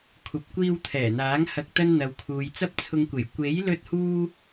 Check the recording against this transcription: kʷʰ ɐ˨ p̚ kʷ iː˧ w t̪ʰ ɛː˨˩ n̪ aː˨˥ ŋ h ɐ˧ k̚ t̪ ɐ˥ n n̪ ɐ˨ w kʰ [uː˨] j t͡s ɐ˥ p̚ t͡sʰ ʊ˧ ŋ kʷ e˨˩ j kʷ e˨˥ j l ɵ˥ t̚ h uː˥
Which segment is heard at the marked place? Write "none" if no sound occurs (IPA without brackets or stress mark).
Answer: uː˨